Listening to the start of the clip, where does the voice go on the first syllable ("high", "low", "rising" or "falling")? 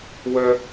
high